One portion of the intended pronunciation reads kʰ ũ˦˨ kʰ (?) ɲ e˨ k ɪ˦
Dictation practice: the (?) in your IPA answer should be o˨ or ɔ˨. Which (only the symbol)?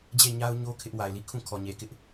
ɔ˨